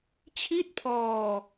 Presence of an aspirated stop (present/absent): present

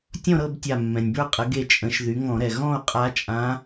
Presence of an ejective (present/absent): present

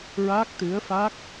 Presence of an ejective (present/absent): absent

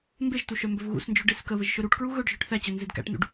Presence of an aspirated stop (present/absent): absent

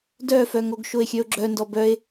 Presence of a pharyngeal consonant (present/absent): absent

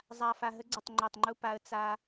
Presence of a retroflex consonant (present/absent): absent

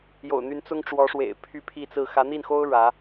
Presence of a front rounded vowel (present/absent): present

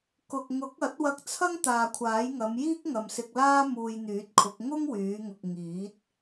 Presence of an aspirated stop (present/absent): present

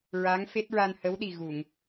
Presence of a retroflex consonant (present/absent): absent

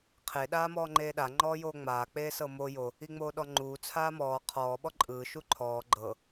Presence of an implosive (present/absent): present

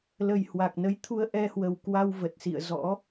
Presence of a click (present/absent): absent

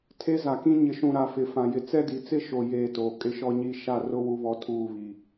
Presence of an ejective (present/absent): present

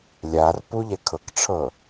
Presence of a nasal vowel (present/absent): absent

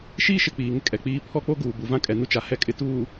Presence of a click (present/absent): absent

